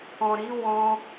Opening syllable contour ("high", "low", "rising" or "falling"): low